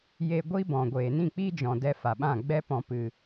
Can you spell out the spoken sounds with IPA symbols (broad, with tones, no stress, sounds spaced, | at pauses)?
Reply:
j e˧ ɡʷ i˦ b ɔ̃˨ ɡʷ eː˨ n ĩ˦˨ k͡p i˦ d͡ʒ ɔ̃˨ d ɛ˧ f a˨ ɓ ã˦˨ ɡ͡b ɛ˦ p ɔ̃˧ p ɨ˧